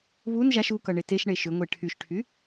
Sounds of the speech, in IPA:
β u n ʒ a ʃ u k ʌ ɳ e t e ʃ ɳ e ʃ ʏ ŋʷ e ʈʰ y ʃ ʈʰ y

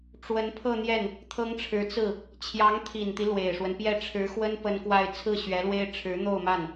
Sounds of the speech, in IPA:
ʈ͡ʂ w ə˧˥ n pʰ ɤ˥˧ n̪ j ɛ˥˩ n | t̪ʰ ɤ˥ ŋ ʈ͡ʂʰ ɻ̩˧˥ t͡s ɹ̩˥˩ | t͡ɕʰ j ɑ˧˥ ŋ t̪ʰ i˨˩ n t̪ i˦ l w e˨˩ ɪ̯ ʂ w ə˦ n p j ɛ˥˩ ʈ͡ʂʰ ɻ̩˧˥ x w ə˥ n p ə˥ n k w a˥˧ ɪ̯ t͡sʰ ɹ̩˥˩ ɕ ɥ ɛ˧˥ l w e˥ ɪ̯ ʈ͡ʂʰ ɻ̩˧˥ n̪ o˥˧ ʊ̯ m a˥˩ n

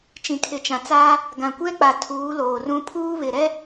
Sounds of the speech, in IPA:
t͡ʃ ĩ˨ kʰ ɪ˨ t͡ʃ ã˨ t͡s aː˦ | ɡ ã˨ kʷ ɛ˦ k͡p a˨ tʰ uː˨˦ l oː˨ r ũ˦ pʰ uː˦ β ɪ˨ ɾ ɛ˦

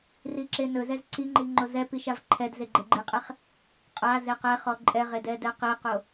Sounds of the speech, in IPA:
r i ǁ e n ɵ z ɛ z ǀ i ŋ͡ǃ i ŋ͡ǃ o z ɛ p i ʃ a v ǃʰ ɛ d z e ɡ͡ǃ e ɡ͡ǃ i qʼ ɛ χ | qʼ a z e q ɛ χ ɔ ǃʼ ɛ ʁ e d ɛ d ɛ q i q o

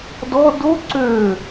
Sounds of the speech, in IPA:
d ɔ d o ǀ ø

